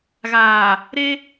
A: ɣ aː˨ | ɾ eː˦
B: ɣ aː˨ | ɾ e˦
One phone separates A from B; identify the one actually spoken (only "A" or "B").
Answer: B